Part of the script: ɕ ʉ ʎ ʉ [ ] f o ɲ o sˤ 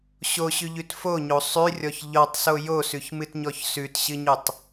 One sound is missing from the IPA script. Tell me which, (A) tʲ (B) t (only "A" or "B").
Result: B